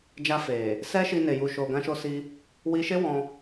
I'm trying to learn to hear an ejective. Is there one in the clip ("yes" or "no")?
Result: no